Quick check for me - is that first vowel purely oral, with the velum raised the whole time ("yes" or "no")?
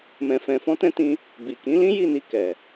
no